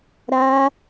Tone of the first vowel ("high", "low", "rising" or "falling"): high